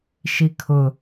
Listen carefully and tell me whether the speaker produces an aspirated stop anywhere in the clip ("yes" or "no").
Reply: yes